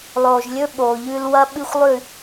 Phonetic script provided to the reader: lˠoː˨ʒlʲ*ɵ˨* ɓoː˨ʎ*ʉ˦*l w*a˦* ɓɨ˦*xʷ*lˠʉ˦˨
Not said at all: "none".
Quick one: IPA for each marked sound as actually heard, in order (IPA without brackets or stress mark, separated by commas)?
ɵ˦, ʉː˦, ɐ˦, xʷ